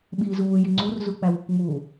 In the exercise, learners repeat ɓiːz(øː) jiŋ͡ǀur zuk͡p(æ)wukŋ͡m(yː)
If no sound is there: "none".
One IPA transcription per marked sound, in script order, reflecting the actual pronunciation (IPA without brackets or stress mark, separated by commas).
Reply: uː, æ, uː